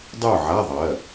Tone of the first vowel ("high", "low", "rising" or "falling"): falling